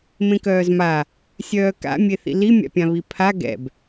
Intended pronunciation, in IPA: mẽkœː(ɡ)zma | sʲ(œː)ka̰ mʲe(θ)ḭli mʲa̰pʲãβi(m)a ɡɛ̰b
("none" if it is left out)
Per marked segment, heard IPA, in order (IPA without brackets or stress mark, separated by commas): none, œː, θ, pʰ